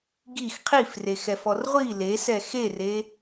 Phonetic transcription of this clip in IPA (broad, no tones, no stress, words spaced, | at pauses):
ɡix qʰifrexɛfɔr ʁʷi lesɛ xere